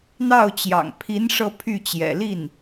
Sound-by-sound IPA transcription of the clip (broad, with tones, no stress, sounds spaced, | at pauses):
n̪ ɑ˥˩ ʊ̯ t͡ɕ j ɑ̰˨˩ ŋ pʰ i˧˥ n ʂ ɤ˥˧ pʰ y˥˩ t͡ɕ j ɛ̰˨˩ l i˥˩ n